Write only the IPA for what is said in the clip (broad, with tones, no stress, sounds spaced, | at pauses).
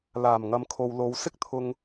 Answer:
l aː˨˩ m ŋ ɐ˨ m kʰ o˨ w l o˨˧ w s ɪ˥ k̚ t̪ʰ ʊ˧ ŋ